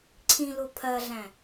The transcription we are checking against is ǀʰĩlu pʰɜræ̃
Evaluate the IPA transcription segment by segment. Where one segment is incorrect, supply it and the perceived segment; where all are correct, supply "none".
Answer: r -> ɮ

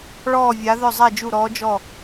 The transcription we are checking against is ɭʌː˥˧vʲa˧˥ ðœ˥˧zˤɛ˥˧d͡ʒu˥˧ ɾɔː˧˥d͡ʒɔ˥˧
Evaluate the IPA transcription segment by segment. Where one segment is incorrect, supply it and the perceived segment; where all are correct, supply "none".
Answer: ʌː˥˧ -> ɔː˥˧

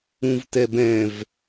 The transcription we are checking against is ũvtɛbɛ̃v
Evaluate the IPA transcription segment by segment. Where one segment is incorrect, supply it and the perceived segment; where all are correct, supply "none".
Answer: none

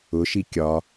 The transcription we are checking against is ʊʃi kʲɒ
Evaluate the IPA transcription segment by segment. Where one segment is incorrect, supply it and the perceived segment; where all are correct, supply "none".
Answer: none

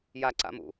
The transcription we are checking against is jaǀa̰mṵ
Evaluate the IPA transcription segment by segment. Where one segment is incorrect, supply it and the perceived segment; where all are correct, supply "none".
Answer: none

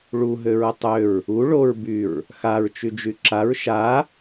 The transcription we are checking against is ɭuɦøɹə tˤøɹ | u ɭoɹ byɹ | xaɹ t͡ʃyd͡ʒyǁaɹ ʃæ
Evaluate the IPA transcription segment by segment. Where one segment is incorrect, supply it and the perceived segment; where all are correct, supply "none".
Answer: æ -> a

